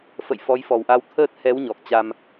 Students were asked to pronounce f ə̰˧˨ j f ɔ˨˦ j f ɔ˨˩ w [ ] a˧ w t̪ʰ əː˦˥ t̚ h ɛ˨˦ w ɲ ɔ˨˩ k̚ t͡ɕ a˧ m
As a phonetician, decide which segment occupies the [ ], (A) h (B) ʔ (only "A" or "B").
B